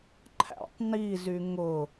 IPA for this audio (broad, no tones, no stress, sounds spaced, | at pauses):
ǃʰ æ̰ tˤ n i z y ŋ ʊ